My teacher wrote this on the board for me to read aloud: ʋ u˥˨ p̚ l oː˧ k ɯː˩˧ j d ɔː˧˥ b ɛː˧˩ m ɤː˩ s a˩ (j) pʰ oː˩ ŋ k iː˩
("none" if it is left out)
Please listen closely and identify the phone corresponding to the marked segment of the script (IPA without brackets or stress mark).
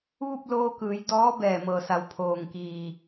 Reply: w